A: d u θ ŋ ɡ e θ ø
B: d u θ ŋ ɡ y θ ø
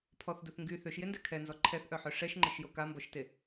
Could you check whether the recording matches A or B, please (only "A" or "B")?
B